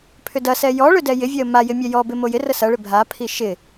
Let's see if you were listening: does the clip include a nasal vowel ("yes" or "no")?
no